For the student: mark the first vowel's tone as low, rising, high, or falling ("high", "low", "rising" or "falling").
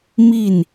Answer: falling